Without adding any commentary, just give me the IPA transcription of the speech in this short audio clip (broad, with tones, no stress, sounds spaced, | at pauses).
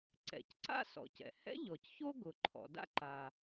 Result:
ǀ ɛ̰˩ c ǀ a̰˥ s ɔ̰˩ c ɛ̰˩ h ɛ̰˥ ʎ ɔ˩ c ç o˥ ɡ ʊ˩ ǃʰ ɔ̰˩ d a̰˥ ǃ a˩